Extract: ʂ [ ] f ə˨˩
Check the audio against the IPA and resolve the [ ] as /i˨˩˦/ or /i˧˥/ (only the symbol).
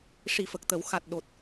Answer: i˨˩˦